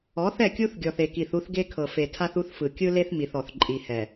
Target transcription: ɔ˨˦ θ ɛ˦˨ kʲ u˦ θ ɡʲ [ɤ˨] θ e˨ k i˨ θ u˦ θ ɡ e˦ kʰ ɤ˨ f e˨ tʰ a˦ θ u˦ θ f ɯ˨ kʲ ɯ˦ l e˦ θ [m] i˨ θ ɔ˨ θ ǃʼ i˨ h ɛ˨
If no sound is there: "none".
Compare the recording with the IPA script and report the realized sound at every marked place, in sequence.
ɔ˨, m

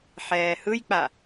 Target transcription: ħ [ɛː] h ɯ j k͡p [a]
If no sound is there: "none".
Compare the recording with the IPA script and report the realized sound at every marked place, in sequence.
ɛː, a

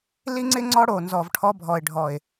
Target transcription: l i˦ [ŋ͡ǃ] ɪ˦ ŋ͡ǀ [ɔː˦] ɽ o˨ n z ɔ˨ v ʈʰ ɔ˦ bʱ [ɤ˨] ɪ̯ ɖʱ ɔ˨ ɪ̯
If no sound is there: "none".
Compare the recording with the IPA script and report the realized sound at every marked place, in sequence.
ŋ͡ǀ, ɔ˦, ɔ˨

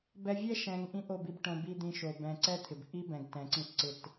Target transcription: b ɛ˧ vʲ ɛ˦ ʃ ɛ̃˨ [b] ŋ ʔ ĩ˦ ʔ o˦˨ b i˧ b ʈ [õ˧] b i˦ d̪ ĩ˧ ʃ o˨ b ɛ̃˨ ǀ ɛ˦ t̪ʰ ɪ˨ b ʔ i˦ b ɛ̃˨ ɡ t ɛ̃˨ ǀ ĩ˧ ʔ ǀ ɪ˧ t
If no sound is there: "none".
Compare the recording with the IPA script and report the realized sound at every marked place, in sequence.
none, õ˧

